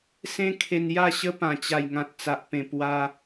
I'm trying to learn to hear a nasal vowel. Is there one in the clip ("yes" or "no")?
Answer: yes